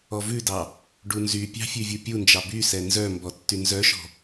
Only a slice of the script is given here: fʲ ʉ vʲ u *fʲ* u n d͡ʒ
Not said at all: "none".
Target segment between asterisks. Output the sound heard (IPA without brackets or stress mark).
pʲ